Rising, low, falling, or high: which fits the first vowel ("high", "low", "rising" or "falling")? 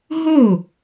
falling